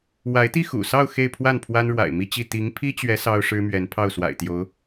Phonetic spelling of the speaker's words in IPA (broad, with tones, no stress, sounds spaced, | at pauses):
w a˧˥ ɪ̯ t̪ i˥˩ x ṵ˨˩ s ɑ˥˧ ʊ̯ x e˥˧ ɪ̯ pʰ w a˥˩ n pʰ w a˥ n ɻ w a̰˨˩ ɪ̯ m i˥˧ t͡ɕ i˥˩ t̪ i˧˥ ŋ pʰ i˥ t͡ɕ ɥ ɛ˧˥ s ɑ˥ ʊ̯ ʂ ɻ̩˥ m ɥ ɛ˧˥ n pʰ ɑ˥˩ ʊ̯ s w a̰˨˩ ɪ̯ t̪ j o˧˥ ʊ̯